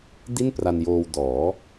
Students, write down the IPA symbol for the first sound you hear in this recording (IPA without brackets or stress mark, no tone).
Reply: d